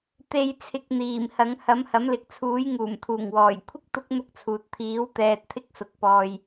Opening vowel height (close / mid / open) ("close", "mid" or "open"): mid